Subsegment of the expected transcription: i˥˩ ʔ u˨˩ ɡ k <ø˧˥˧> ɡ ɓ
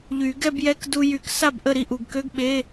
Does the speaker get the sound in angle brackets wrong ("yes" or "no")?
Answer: no